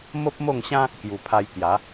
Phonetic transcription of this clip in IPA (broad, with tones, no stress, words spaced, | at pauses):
mo˦p̚mo˥˧ŋɕã˦ | kju˨˩pʰa˧j kja˨˦